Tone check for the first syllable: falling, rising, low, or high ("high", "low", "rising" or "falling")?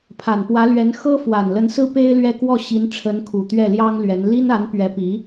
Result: low